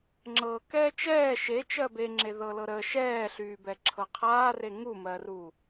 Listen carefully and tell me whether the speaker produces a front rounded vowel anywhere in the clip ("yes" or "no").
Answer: yes